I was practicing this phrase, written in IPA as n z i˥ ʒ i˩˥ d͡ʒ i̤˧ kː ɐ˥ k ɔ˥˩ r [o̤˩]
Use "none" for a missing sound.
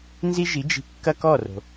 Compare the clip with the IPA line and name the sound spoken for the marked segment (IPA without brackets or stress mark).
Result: o̤˩